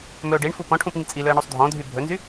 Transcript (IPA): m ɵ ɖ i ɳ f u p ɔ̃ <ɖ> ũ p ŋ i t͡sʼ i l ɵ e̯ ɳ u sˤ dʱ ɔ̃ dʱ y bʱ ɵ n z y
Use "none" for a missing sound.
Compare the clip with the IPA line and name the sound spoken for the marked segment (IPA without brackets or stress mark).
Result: ʈʰ